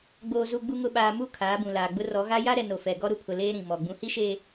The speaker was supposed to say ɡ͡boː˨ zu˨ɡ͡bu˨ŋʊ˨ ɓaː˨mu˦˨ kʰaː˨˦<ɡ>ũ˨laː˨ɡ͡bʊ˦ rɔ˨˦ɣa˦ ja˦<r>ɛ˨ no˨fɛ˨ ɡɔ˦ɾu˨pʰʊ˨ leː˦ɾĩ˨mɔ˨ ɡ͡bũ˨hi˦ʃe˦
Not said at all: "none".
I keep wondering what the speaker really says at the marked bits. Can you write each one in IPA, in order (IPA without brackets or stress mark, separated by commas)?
b, ɾ